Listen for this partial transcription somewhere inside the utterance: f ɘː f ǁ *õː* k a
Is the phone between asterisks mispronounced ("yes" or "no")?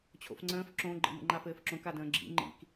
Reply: yes